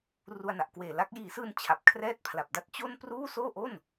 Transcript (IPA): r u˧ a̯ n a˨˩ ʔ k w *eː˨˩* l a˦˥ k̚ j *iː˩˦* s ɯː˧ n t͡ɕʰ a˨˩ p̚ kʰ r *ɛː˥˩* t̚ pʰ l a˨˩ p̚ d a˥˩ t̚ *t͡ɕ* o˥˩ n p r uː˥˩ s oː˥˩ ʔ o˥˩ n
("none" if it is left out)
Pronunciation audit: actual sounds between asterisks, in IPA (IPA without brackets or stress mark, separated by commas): eː˨˩, iː˩˦, ɛː˥˩, t͡ɕ